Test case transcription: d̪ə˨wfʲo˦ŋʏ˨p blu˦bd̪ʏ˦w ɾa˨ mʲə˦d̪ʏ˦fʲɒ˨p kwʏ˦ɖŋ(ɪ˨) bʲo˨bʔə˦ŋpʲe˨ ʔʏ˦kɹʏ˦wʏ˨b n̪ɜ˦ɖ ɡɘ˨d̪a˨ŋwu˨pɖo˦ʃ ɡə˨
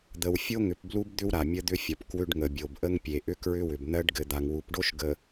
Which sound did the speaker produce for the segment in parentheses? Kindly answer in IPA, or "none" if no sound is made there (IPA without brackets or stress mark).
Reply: ə˨